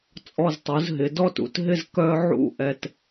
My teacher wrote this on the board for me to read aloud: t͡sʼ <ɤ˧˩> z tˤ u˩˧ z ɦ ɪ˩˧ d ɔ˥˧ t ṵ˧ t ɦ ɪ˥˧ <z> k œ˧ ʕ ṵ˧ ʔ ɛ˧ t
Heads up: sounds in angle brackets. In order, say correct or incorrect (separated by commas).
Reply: incorrect, correct